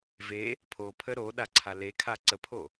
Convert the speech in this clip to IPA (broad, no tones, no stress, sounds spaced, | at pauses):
v e | pʰ o pʰ ə ɾ o ɗ a ǀʰ a l e kʰ a ǀ ə pʰ o